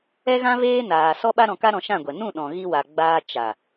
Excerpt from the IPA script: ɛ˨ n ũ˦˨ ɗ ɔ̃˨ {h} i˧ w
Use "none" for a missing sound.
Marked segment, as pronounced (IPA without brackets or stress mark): ɣ